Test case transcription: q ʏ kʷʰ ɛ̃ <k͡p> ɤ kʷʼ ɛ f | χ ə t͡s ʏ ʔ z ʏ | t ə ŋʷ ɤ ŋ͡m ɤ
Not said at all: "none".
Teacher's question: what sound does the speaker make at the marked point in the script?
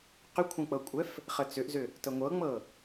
k͡p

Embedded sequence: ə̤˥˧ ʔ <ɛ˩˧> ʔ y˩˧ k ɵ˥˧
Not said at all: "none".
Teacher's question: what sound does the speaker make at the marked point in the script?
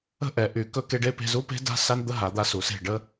ɛ˩˧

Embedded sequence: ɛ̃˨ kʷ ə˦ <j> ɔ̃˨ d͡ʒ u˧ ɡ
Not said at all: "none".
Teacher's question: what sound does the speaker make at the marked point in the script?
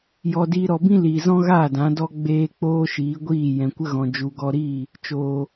ɣ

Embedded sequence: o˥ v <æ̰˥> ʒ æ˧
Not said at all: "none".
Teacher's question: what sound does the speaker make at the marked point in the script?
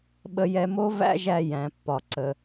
æ̰˥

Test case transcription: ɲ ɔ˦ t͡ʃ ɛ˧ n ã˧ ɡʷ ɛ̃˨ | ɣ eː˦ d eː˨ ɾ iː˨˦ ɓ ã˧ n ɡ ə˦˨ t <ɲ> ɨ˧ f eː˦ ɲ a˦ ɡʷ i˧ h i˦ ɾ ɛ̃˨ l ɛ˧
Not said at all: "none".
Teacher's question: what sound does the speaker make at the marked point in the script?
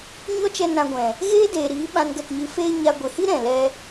ɲ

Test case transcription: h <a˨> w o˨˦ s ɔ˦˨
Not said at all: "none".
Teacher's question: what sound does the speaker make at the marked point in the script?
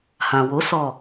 ã˨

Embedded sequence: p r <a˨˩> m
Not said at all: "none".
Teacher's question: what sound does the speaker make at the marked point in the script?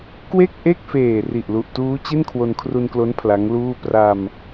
a˧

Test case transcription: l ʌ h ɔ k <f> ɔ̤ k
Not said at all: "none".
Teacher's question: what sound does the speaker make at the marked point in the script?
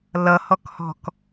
h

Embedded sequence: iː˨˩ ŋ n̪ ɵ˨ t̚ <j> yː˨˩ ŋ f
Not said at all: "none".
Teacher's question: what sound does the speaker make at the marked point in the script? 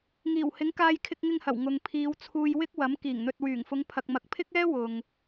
w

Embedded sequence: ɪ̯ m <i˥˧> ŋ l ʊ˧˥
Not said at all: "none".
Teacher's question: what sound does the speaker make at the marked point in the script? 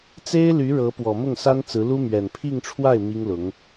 i˥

